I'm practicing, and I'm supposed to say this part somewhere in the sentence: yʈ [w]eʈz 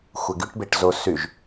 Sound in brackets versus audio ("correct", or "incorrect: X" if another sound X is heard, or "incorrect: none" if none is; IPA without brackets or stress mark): incorrect: b